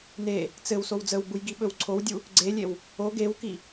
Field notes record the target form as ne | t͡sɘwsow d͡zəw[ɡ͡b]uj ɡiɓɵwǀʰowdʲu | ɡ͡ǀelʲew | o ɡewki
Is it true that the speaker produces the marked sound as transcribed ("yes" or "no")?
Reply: yes